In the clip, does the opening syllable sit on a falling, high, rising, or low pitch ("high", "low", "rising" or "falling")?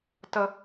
high